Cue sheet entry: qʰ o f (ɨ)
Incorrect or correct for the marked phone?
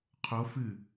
correct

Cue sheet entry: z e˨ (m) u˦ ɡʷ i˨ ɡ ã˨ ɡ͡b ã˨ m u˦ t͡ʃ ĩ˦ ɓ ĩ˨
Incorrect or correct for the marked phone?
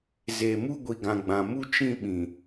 correct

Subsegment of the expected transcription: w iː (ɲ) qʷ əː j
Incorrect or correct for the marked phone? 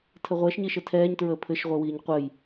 correct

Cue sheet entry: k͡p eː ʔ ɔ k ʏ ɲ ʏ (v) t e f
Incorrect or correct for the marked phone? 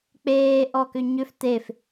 incorrect: f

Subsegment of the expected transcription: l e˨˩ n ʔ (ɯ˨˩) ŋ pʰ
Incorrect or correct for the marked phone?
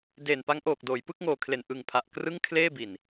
correct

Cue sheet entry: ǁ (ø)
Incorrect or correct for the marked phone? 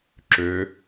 correct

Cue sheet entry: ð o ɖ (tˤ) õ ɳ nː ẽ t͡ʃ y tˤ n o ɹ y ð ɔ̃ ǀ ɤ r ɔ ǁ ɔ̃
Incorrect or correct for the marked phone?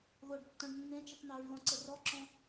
incorrect: tː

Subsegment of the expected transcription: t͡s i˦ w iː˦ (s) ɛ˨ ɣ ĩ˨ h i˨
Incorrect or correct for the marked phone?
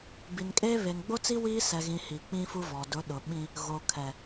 correct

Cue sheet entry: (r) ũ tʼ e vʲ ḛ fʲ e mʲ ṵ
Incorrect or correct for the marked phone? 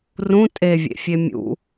correct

